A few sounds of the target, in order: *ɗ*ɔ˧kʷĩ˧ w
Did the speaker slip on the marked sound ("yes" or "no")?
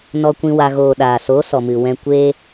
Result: yes